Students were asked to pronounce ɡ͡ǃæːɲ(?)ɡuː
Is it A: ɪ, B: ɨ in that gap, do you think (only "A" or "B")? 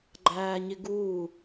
A